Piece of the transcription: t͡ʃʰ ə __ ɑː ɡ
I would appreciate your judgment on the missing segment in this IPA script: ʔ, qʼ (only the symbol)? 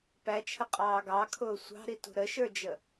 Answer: qʼ